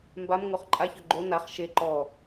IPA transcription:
mbamŋoχ ǃʼaçœ ɡ͡ǃo naχ ʃe ǃɔ

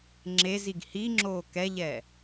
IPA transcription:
ŋ͡ǁeziɡ hiŋ͡ǁoː kɛʎɛː

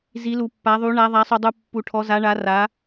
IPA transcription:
zi˩˧lu˩pːa˩˧ðˤu˩˧ ɳa˩˧ðˤa˩˧sˤu˩dˤu˩ pːu˩ʈʰɔ˩˧za˩˧ɳa˩˧ ra˩˧

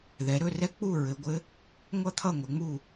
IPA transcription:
ðɛ˩˧ɾɵ˥˨rɛ˥k͡pu˥˨ ɹɘ˩˧ɡʷɘ˧˥ | ŋʷʌ˥t̪ʰʌ˥˨ŋʷɘ˩˧ŋ͡mu˥˨

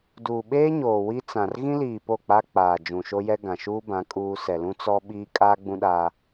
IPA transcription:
duː˨ɓeː˦ɲoː˨ wi˦t͡sã˨r ɣĩ˦liː˨ po˦˨k͡pa˦ k͡paː˨ d͡ʒũ˨ʃo˦jɛ˦ ɡã˨ʃuː˦bã˨˦ kʼuː˦ sɛ˨lũ˦ t͡sɔ˦ ɓiː˦ kʼaː˦ɡ͡bũ˦ɗaː˦

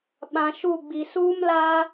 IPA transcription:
ɓã˨ʃu˦˨ɡ͡bi˨ suː˦mlaː˦

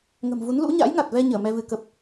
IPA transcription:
ŋə̤˨˩mvu˨˦n lṵ˧˥ ɲa̰˧˥jŋa˨˩t̚vɛ˧ ɲəː˧˩mɛ˧vɨ˨˦kə˨˩p̚

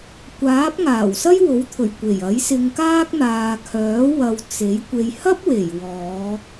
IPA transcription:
kʷaː˨˥p̚ ŋaː˨˩wsɐ˥jwo˨˥wt̪ʰɵ˨˩ɥ kʷe˨˩j ɐ˨˥jsɪ˧ŋkaː˥k̚ n̪aː˨ kʰœː˨˥ wɐ˧wt͡se˨˥j kʷe˨jhɐ˥p̚we˨˩j wɔː˨˧

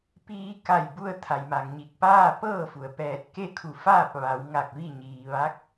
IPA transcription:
piː˧ka˧˩jbu˧ə̯ t̪ʰa˩j ma˩ŋɲi˧˩k̚ paː˥˨pɤː˥˨fu˩ə̯ pɛː˧˩t̚ke˥˨kʰu˧˩faː˥˨p̚ ʋa˩˧w ŋa˧˩k̚ ʋi˥˨ɲiː˩ʋa˧˥k̚

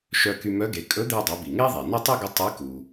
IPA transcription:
ʃœ˧ky˧mœ˧˥ɡe˩˧ kʼɵ˧˥d̪e˧dˤœ˩˧ bi˩ŋe˥ðˤe˩ nœ˥tˤy˥ɡə˧˥ tˤe˧˥ku˩

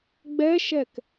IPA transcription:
ɡ͡bɛʃɛk

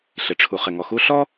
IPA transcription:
ɬɪ˨ ʈ͡ʂʰu˨ χɪ˨ŋɔ˨xu˦ ɬɔ˦

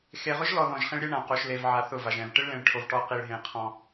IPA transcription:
xe˨ʁʊ˦ʒlɔ˨ ðɔ̃˨ʒχĩ˦ɭɾʲɛ˦ɳã˨ qo˨ʃle˨vʕa˨ θʊ˦˨va˨ʒɛ̃˨v ʈɪ˦ɭlẽ˨ɭʈʰo˨v ʈɔ˦ qi˨ɭɦẽ˨ qʰɔ̃˦

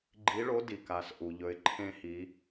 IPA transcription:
ɡ͡ǃi˧˥ɭo˧˥di˩ ka˩s ʔu˩ʎɵ˩˧ɪ̯ ǃʰẽ˧hi˩˧

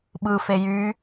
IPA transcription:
ɓɯ fejy

